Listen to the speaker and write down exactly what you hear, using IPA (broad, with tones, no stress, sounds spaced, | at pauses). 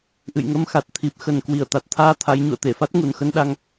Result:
ʔ ɨ̰˧˨ j ŋ ə˧ m x a˨˩ t̚ t̪ʰ i˨˩ p̚ x ə˨˩ n k w i˧˩ ə̯ t̪ a˨˩ t̚ t̪ʰ aː˧ t̪ʰ a˨˦ j ɲ ṵ˧˨ ə̯ t̪ e˧˩ f a˦˥ t̚ ŋ u˨˩ n x ə˧ n ɗ a˧ ŋ